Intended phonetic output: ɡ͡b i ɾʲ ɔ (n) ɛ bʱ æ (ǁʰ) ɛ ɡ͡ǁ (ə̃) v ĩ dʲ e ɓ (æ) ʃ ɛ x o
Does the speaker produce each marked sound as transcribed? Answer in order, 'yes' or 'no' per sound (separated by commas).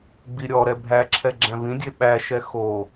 no, yes, no, yes